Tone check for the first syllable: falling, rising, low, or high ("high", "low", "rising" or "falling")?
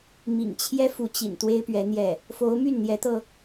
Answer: low